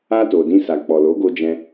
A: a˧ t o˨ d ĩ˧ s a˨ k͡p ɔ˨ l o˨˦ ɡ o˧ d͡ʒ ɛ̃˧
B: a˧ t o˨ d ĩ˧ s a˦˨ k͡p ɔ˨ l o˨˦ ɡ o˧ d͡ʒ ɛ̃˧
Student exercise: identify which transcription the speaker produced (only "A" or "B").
A